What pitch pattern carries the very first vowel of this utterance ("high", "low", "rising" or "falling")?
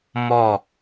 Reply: falling